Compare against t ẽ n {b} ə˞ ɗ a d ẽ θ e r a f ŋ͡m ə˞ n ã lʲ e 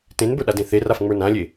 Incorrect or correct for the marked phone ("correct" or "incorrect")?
correct